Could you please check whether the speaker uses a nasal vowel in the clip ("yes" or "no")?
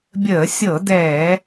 no